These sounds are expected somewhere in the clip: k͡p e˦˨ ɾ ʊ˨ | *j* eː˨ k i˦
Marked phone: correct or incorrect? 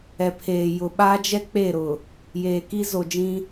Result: correct